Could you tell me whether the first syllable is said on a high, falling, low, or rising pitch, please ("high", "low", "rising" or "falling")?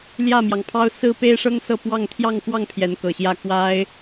falling